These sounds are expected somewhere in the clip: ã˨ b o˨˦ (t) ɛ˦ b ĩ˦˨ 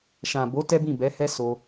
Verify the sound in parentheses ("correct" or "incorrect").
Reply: correct